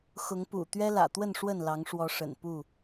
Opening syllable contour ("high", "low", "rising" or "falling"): rising